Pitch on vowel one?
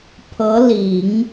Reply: rising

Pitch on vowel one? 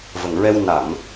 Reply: low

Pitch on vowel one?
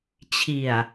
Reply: low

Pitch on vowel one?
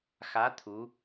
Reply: rising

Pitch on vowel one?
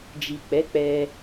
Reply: low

